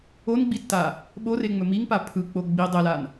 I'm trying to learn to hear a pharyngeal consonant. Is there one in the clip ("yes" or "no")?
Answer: no